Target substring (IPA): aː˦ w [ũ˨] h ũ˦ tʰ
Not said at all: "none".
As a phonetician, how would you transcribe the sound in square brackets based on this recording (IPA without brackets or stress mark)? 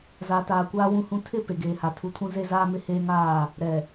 ũ˦